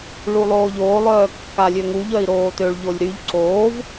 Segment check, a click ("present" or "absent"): present